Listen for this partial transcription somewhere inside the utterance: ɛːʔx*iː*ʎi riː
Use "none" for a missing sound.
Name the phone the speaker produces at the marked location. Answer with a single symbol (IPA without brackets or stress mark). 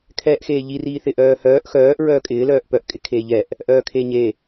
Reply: eː